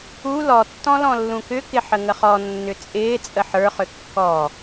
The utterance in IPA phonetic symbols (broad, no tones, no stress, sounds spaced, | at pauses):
u l ɔ tː ɔ̃ l ɔ̃ lː ũ k ʏ k ɪ ħ ə ŋ ə χ ɔ nː ʏ t͡sʼ ɪː t͡sʼ ə ħ ə˞ χ ʏ kː ɔː